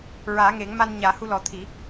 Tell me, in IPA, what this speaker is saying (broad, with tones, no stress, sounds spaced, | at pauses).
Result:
ɹ aː˨˩˦ ŋ e˨˩˦ ŋ m a˧ n ɲ aː˨˩˦ h u˧ l ɔ˨˩˦ t̪ʰ i˨˩˦